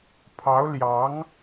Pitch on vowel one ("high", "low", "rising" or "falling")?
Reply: rising